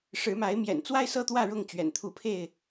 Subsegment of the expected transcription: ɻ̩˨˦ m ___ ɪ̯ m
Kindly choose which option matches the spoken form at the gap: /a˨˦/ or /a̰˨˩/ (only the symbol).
a˨˦